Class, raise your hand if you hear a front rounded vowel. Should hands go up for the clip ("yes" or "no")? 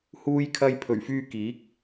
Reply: yes